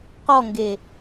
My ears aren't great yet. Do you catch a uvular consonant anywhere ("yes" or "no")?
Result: yes